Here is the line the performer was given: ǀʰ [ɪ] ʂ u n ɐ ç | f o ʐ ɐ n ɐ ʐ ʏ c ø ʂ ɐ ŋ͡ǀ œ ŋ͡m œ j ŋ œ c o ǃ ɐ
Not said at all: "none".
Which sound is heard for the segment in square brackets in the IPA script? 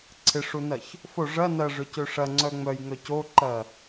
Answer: ɪ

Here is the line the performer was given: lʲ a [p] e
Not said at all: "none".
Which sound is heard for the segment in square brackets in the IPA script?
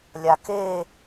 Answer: k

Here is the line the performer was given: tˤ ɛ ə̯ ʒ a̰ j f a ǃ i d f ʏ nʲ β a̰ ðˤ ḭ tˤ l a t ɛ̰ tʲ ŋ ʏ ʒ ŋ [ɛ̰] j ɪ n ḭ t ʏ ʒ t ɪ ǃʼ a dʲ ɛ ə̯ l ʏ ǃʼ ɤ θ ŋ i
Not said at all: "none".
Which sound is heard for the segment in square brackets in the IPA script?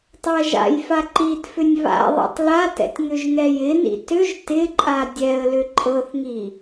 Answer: ɛ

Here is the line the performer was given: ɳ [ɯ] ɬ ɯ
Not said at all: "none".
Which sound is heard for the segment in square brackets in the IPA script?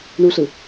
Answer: u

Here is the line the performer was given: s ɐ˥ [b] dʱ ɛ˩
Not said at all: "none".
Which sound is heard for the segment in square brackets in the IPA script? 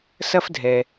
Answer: f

